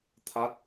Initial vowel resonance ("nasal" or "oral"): oral